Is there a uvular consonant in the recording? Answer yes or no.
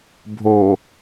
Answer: no